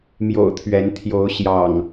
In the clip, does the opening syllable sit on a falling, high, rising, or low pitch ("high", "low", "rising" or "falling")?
low